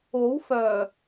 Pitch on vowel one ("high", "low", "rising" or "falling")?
rising